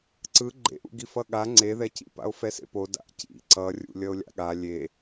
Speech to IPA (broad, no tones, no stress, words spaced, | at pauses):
ǀɯ ɡ͡ǃḛʔṵ ɡifʌɠa ŋ͡ǀeðɛcḭpa̰o̯ fɛsḛpo da̰ʔcḭ ǀʌrʲṵ lʲʌo̯lʲa̰ɠa lʲe